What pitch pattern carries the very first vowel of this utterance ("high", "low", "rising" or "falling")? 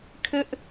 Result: high